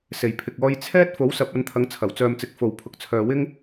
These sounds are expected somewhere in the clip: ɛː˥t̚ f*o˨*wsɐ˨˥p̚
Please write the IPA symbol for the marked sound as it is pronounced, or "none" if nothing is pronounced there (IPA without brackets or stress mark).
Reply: o˨˥